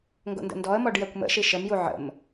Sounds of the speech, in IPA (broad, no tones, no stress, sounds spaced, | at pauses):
ŋ ɡ o̰ n d ə̰ n d ɔ ə̯ m ɔ ɖ j ɛ kʷ m ə̰ ʃ i ʃ ə m j u ʕ ə̰ m